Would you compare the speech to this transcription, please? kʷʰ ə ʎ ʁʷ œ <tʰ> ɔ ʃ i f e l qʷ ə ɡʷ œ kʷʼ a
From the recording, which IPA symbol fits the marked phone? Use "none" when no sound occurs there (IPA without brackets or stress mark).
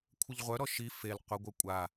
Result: ɾ